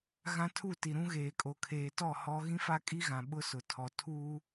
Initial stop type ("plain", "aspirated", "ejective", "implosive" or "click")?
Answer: aspirated